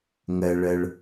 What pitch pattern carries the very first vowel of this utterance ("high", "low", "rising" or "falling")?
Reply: low